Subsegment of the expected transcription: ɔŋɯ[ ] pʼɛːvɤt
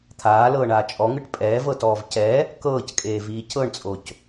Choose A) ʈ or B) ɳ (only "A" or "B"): A